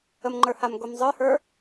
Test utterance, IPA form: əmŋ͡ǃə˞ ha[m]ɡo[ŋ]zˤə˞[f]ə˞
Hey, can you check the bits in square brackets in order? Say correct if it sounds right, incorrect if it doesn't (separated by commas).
correct, incorrect, incorrect